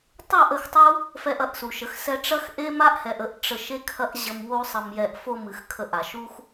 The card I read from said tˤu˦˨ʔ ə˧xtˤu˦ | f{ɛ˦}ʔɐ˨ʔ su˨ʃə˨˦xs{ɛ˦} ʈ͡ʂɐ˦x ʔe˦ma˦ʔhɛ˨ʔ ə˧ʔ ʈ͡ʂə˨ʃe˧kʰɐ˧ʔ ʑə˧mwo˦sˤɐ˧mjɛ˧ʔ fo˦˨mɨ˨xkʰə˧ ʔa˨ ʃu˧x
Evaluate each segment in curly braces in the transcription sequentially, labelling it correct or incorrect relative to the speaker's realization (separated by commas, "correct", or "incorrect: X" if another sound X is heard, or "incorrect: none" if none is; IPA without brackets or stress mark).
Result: incorrect: ɛ˧, correct